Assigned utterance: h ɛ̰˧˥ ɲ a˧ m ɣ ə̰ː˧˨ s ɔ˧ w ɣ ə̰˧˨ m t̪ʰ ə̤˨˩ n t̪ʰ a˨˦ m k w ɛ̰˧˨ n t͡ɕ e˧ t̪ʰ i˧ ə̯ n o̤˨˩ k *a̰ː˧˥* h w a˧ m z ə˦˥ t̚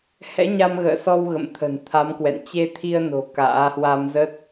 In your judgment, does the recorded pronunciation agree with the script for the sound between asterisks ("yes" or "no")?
yes